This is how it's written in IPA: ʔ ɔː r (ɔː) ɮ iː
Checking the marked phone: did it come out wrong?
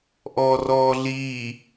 no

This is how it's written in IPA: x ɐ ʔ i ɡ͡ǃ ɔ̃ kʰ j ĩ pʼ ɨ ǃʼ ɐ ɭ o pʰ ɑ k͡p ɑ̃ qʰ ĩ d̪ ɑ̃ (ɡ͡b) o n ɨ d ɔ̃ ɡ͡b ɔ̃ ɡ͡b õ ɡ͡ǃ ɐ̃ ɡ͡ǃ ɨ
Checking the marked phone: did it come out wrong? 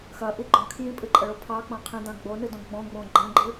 no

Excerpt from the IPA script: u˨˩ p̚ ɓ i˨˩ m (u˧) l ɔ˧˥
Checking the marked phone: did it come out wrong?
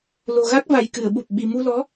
no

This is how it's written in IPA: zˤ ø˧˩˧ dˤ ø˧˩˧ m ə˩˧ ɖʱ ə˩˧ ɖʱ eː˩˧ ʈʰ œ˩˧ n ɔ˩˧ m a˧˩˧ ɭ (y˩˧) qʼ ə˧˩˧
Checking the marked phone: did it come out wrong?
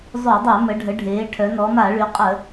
no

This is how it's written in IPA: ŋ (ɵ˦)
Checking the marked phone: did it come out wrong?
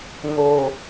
yes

